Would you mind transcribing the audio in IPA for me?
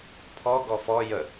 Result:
pʰ ɔ ɡ ɔ f ɔ j ə

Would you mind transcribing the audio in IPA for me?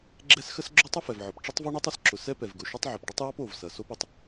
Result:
ɡ͡ǁ ɛ˥ s x ə˥ s ɡ͡ǁ o˥ tˤ ə˥ f ɛ˩ v ʕ ɔ˩ p ʈ͡ʂ ə˥ tˤ v ɔ˥ ɳ o˥ tˤ ʊ˩ s ǁ ʊ˩ s ɛ˥ p ɛ˩ v ɡ ʊ˩ ʃ o˥ tˤ ʕ ʊ˩ p ɖ ə˥ tˤ j ɔ˥ p o˩ v s ɐ˩ s o˥ p ə˩ tˤ

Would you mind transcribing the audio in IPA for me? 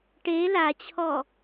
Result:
ʈ e l a t͡ɕʰ ɔ

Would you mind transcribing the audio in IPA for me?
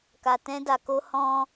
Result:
k a˧ t ɛ̃˦ d a˧ k o˦ h ɔ̃˧

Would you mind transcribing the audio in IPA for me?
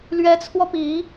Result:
l ɥ ɛ˧˥ t͡sʰ w ɔ˧ p i˨˩˦

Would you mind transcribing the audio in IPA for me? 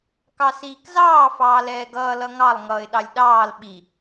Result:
k ɑ s iː k z ɑː f ɑː l ɛː ɡ ʌː l ʌ ŋ ɑ lˠ ŋ ʌː ɪ̯ ɗ ɑ lʲ ɗ ɑː l ɓ i

